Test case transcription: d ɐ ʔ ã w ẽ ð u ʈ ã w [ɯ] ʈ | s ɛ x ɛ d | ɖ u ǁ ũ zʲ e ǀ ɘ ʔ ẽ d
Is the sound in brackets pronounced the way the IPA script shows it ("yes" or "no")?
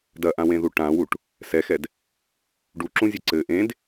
no